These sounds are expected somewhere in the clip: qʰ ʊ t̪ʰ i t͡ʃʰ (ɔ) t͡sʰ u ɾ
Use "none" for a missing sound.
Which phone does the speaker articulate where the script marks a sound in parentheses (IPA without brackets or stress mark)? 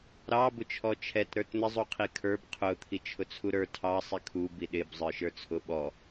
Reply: ʊ